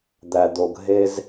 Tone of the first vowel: low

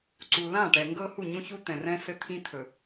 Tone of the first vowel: low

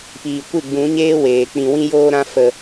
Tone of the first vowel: low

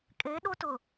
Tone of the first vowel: rising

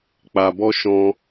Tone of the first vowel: low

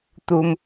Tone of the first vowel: high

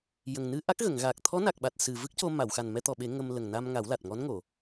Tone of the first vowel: low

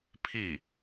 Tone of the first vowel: falling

